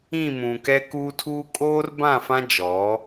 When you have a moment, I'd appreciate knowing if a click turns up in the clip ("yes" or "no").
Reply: no